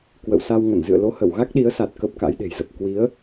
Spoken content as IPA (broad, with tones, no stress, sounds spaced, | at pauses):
k w ə̰˧˨ w s a˧ w ŋ ə˧˩ n z ɨ̰˧˨ ə̯ l o˨˦ h ə˧˩ w ɣ a˦˥ k̚ ɗ i˨˦ ə̯ s a˨˩ t̚ k ə˦˥ p̚ k a̰˧˥ j ɗ e̤˨˩ j z ə˨˩ p̚ k w i˨˦ ə̯